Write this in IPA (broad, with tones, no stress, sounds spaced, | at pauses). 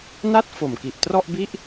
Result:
n a˥˩ t̚ f o˨˩ m k i˨˩ ʔ t r ɔ˥˩ ʔ b i˥˩ ʔ